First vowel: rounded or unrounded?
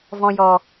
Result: rounded